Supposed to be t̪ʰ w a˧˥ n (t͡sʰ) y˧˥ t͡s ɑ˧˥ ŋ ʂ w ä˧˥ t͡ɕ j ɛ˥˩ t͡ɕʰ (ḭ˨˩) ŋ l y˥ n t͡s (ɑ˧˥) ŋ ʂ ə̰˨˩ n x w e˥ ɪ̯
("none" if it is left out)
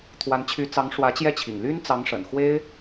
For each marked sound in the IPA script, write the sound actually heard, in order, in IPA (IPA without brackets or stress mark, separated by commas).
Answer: t͡ɕʰ, ḭ˨˩, ɑ˧˥